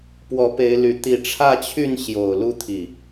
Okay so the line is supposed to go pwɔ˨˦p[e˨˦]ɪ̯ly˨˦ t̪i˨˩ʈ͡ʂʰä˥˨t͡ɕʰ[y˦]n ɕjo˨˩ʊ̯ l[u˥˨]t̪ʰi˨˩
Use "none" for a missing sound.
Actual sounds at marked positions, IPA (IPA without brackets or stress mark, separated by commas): e˨˦, y˥˨, u˥˨